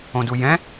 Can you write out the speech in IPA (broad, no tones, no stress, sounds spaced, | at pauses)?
õ d u j ɛ̃